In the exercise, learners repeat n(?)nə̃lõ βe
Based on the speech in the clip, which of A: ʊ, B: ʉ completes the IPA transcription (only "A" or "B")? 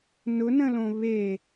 A